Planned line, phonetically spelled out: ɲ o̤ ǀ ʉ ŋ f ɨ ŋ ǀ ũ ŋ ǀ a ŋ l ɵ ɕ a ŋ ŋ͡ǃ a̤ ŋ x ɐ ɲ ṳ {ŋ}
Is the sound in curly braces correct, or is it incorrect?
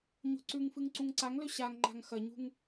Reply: correct